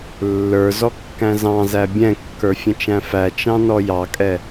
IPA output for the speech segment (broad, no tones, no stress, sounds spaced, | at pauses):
lː ə˞ z ɔ kː æ̃ z ɑ̃ z æ bʲ ɛ̃ kː ə˞ fʲ ə̃ t͡ʃ æ̃ f æ t͡ʃ ɑ̃ n ɔ j ɑ kʼ ɛ